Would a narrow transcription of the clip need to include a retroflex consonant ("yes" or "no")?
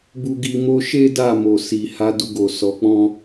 no